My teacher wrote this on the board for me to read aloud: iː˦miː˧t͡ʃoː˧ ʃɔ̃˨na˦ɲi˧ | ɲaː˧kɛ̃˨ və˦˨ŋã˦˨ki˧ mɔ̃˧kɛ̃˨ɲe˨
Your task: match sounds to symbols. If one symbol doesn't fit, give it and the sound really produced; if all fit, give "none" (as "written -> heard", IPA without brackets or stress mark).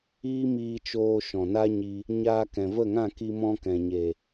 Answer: none